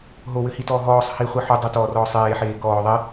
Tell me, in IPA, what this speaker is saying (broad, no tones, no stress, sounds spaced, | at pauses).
ɦ o w ɘ h i t ɔː ɦ ɔː sˤ h i χʷ i ħ u dˤ a t ɔː r ɔː sˤ eː ħ eː k ɔː ðˤ e